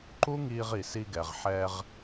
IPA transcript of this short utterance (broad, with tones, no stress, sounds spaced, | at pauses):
ǃ u˦ ŋ iː˧ ʁ i˨ s i˧ ɡ ɛ˨ ʁ ħ ɛ˧ ʁ